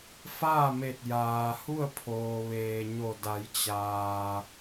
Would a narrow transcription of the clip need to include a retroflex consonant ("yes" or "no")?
no